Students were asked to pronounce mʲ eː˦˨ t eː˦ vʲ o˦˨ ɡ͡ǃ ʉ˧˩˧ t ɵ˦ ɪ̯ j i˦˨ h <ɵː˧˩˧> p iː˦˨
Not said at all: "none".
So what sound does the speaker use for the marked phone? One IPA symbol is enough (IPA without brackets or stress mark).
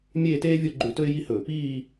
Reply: ɵː˧˩˧